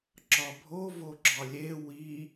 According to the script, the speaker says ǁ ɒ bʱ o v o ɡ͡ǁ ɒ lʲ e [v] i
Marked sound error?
yes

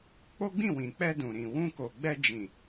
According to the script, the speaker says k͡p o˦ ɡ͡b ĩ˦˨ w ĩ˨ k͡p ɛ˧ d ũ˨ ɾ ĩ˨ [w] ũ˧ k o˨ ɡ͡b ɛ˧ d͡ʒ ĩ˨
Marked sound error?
no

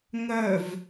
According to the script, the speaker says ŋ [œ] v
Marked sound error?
no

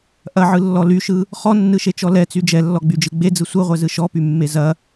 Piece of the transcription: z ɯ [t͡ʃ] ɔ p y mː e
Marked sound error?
yes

